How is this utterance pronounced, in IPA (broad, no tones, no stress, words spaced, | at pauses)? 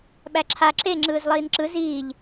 ɓæǁʰa ǁe ŋ͡ǁɯːzlˠiːnǁɯ ziːʎ